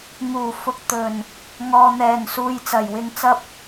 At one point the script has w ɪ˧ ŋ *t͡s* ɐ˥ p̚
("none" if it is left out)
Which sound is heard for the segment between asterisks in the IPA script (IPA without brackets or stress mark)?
t͡s